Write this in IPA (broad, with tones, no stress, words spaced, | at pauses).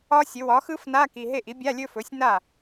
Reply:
ɒ˦˥sʲɵ˩˥ wɒ˩˥xɯ˦˥fna˧˥˧ ki˨ ɦe˥˩ʔi˩˥ bʲa˧˥˧lʲɵ˥˧fɵ˩˥sʲ na˥˩